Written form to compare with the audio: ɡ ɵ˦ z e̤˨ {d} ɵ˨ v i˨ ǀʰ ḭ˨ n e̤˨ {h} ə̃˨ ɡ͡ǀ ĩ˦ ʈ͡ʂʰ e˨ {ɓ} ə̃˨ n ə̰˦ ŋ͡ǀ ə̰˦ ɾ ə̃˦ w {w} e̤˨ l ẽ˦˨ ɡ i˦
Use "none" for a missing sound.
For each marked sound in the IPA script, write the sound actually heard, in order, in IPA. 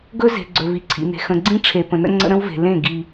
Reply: ɡ͡ǀ, x, p, v

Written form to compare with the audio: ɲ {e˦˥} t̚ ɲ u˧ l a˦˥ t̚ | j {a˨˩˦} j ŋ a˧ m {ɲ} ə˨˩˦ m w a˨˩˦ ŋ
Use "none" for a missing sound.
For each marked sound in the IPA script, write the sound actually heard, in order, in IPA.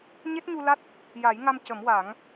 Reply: e˦˥, a˨˩˦, c

